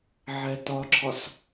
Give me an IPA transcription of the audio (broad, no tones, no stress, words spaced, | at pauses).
ʕɛtɒǁʰɒs